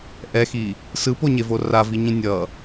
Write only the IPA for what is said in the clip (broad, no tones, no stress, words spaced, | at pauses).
ʔɛxi | sɯpoɲevo raviɲĩ nʲʌ